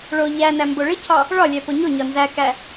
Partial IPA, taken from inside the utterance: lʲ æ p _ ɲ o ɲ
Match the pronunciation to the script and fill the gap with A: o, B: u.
A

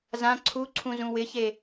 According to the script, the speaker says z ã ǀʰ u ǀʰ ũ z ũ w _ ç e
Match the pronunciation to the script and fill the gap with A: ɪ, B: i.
A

